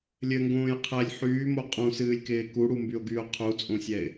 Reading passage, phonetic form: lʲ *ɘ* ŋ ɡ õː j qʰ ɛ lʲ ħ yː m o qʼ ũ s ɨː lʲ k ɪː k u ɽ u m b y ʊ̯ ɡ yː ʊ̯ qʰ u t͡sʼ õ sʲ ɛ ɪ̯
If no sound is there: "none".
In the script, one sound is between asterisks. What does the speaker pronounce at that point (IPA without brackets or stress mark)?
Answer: ɘ